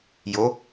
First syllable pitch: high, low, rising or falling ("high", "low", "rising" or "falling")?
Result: rising